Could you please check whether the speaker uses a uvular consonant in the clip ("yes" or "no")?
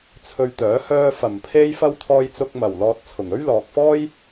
no